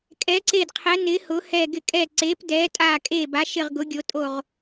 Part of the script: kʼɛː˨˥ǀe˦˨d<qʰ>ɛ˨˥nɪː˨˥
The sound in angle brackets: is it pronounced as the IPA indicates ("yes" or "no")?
yes